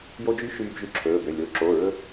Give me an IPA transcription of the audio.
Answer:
j o˧ d͡ʒ y˧˥ ʃ yː˧ b ʒ y˧ ǁʰ ɵː˩˧˩ b ø˩˧˩ lʲ o˩˧˩ ǁ o˩˧˩ ɹ ɵ˧

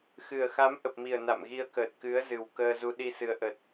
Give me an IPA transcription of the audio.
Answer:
x ɨ˨˩ ə̯ x a˨˦ m ʔ ə˨˩ p̚ m i˨˩ ə̯ n a̰˧˨ m ɣ i˧ ə̯ k əː˨˩ t̚ k ɨ˨˦ ə̯ z ɨ˨˩ w k əː˧ z u˧ ɗ i˧ s ɨ˨˦ ə̯ ʔ ə˨˩ t̚

